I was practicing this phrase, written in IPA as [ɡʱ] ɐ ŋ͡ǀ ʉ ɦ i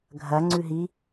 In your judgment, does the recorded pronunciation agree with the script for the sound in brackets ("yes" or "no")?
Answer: yes